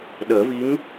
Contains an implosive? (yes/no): yes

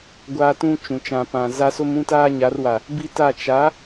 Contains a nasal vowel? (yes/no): yes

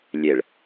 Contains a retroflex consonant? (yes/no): yes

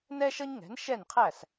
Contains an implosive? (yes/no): no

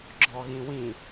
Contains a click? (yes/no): yes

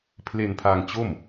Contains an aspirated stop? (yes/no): yes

